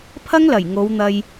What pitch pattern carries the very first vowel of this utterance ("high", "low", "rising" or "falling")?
high